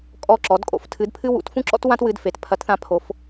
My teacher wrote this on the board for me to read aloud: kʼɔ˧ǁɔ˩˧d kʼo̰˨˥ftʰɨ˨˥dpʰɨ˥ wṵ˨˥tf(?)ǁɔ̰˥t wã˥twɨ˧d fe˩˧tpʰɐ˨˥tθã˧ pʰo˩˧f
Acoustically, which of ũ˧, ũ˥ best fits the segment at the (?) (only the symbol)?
ũ˥